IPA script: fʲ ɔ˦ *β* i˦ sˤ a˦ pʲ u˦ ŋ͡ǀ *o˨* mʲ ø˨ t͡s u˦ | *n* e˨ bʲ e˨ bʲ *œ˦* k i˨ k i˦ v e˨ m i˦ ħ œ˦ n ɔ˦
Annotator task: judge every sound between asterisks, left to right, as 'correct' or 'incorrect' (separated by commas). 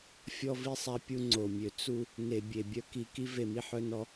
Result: incorrect, correct, correct, correct